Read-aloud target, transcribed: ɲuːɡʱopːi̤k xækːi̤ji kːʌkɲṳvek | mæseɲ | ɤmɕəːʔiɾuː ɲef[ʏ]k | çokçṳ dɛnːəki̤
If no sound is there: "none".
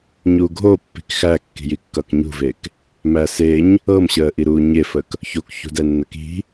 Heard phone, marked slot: ə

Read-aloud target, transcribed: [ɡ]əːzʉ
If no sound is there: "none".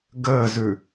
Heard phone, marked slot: ɡ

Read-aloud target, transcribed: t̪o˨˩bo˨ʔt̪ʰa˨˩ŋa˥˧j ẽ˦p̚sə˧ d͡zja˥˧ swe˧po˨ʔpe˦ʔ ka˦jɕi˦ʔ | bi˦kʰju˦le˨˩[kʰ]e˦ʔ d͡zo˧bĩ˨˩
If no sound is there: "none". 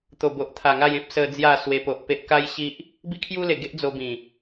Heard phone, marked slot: ɡ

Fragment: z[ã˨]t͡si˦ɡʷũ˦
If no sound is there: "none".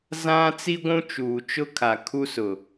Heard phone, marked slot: ã˦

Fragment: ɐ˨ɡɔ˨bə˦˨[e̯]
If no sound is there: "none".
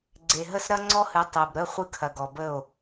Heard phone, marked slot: o̯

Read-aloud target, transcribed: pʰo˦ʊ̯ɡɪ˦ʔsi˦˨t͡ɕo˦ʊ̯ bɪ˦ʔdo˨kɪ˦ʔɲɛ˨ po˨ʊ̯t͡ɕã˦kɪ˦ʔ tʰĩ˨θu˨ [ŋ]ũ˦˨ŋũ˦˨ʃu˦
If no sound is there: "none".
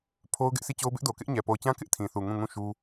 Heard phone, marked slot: ŋ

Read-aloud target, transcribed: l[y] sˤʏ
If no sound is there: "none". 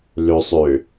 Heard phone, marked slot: ʏ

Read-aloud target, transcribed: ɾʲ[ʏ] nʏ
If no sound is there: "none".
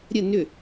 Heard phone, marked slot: ə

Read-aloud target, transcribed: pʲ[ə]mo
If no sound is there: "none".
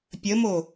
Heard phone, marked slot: ə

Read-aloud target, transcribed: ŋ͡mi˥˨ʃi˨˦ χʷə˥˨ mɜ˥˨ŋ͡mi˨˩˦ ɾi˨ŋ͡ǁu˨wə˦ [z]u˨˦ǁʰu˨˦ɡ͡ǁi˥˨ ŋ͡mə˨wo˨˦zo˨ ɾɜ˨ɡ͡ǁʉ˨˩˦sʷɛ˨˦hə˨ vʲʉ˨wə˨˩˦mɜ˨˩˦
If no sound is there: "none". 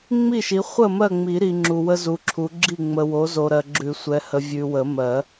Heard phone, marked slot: z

